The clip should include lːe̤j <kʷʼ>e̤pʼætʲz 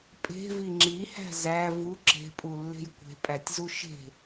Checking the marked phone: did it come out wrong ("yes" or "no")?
yes